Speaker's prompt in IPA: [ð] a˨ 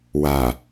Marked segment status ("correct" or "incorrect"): incorrect